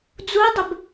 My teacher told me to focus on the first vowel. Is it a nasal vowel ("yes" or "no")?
no